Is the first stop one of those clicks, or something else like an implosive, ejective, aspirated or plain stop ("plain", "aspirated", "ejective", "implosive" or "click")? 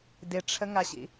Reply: plain